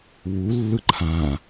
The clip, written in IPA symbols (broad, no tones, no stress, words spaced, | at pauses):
wulːɯ ǃʰã